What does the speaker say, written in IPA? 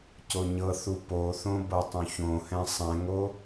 c o ɲ ɤ θ u p o θ õ b ɤ tˤ õ ç õ h ɛ̃ sˤ ɛ̃ ŋ o

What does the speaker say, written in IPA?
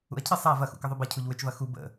ṵ ɐ̯ cʰ ɪ sˤ a v ɐ x ṵ k ə ðˤ o b ɐ cʰ u ʎ w ʏ t͡ʃ v ɐ x u b ə̰

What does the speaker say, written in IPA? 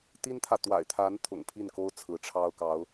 t̪ i˥ n t̪ʰ ä˨ t̪ w a̰˨˩ ɪ̯ t̪ʰ a˧˥ n t̪ʰ ʊ̰˨˩ ŋ pʰ i˥˩ n k o˥ ʊ̯ t͡sʰ ɹ̩˧˥ ʈ͡ʂʰ ɑ˥ ʊ̯ k ɑ˧˥ ʊ̯

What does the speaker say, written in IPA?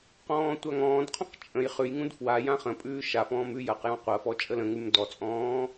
q ɔ̃ː tʷ a ŋ ɔ̃ː d qʰ ɔ̃ q t͡ʃʼ ə̃ j χ ʉ j ŋ ũ d f w a j ã χ ə̃ pʼ ʉː ʃ a f ɔ̃ː m ʉ j ɐ q j ɔ̃ qʷ ɐ f ɔ t͡ʃʼ ə l ə̃ ŋ ʉ m d ɔ t͡sʼ ɔ̃ː

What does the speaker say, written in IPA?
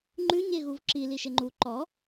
ŋ͡ǃ ʉ ɲ e ɣ u v ǁ i l i ʃ e ŋ͡ǃ u ǃ ɔ

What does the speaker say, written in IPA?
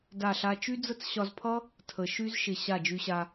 d a˦˨ ɬ a˦ t͡ʃ y˦ d͡z ə˦ t͡s ɕ ɒ˧ z pʰ ʌ˦ | tʰ ə˨ ʃ y˦ z ʃ ɪ˧ ɕ a˦˨ d͡ʒ y˧ ɕ a˧

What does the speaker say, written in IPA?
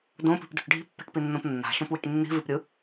d õ p i̤ p d ṳ ʈ ɖʱ i̤ pː ɛ̤ ʈ p i nː õ p nː a̤ ʃ õ p w i̤ ʈ nː i̤ v i p ɾʲ ɯ

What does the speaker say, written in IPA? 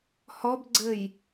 h ɔ b ɡ͡ǀ ɘ j

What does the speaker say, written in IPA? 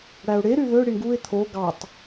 ɽ æ ʊ̯ ɽ e ɾ y ð ø ɽ i ɳ ɡ u ɪ̯ t̪ʰ o ɡ ɑ tˤ

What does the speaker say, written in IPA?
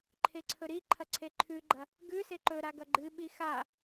ǃʰ e ǀʰ ɵ ɾ i ǃʰ ɐ ǀʰ e ǃʰ ʉ ɡ͡ǃ ɐ | ɡ ʉ s e ǃ ɵ ɾ a ɡ ɐ ɡ͡ǃ ɨ ɓ i x a

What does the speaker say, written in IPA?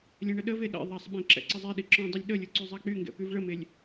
lʲ ɛ̃ ɳ ə ɗ ə v e ɗ ɛ̰ ðˤ a sˤ ɓ ẽ ǁ ɛ̰ ǀ ə zˤ e ɗ i ǁ ɔ̃ dˤ ʊ lʲ ɗ ə lʲ ʊ ǀ y zˤ a k͡p y ŋ ɡ ɛ̰ p y v ɭ ə m e lʲ

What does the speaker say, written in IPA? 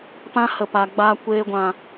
p ã˧ h ə˨ p a˨ ɡ͡b a˨ kʷ eː˨ ɡʷ ã˨

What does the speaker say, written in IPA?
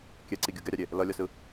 kʲ ɛ ǀ i ɡʲ ɯ ɡ ɛ ɾʲ a ɾʲ e | l ʌ lʲ ʌ s ɯ

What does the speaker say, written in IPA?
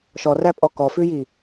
ʃ ɔ r æ pʼ ɔ k ɔ f ʉ j i

